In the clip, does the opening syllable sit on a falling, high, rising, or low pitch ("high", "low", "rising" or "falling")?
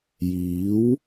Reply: rising